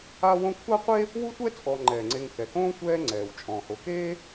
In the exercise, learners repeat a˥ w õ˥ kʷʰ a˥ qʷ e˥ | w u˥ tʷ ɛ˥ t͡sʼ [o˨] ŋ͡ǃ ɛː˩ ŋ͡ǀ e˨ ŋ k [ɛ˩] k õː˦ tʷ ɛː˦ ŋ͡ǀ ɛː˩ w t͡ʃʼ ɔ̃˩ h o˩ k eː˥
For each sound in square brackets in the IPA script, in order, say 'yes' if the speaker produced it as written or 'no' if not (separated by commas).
no, yes